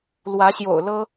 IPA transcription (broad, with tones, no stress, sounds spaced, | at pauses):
l w ä˨˦ ɕ j o̰˨˩ ʊ̯ l ɤ˦